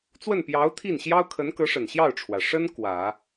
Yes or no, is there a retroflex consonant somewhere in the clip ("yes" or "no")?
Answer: yes